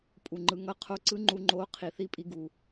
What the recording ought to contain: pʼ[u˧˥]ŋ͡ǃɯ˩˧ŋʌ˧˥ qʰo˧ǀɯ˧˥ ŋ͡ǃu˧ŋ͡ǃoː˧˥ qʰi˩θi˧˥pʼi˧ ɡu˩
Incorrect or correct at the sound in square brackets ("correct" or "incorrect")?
incorrect